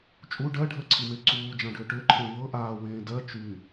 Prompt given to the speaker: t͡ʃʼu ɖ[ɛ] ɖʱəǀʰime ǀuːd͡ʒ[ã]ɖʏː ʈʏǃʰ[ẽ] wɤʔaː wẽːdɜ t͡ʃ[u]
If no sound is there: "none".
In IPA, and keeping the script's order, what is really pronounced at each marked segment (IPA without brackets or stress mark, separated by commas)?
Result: ɜ, ã, ẽ, y